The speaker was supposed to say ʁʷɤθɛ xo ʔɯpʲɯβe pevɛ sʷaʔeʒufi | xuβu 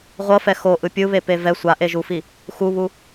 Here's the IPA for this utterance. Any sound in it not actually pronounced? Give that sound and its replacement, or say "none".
θ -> f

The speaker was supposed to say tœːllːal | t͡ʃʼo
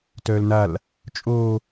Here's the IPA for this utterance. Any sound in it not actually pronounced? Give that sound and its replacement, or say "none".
lː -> n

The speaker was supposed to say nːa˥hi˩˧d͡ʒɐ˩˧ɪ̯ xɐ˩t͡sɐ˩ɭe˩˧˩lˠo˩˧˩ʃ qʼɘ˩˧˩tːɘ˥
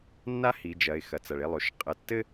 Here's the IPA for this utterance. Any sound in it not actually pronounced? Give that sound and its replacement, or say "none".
none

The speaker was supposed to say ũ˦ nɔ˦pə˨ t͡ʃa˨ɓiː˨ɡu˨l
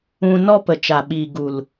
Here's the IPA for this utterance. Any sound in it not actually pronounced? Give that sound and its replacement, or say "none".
none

